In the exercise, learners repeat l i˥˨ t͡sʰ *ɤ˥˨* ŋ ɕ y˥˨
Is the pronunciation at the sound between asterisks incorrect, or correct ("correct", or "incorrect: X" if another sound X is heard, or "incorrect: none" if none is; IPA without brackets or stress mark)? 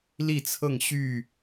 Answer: correct